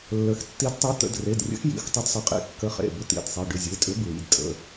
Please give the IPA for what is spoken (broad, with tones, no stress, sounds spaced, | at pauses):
lː ə˩˧˩ x tː i˨˥ d tˤ e˨˥ t̪ ə̰˩˧˩ d r e˩˧˩ d rʲ ə̰˨˥ x j ḭ˩˧˩ x tˤ ʏ˨˥ d sˤ ə˩˧˩ qʼ ḭ˩˧˩ kː ə˨˥ χ ḛ˩˧˩ b ʏ˨˥ t̪ ḭ˩˧˩ d sˤ i˩˧˩ ɖ ʏ˩˧˩ zʲ e˩˧˩ tʼ ʏ˨˥ b ɹ ḭ˩˧˩ d tʼ ə̰˩˧˩